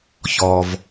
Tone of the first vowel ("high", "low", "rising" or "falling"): low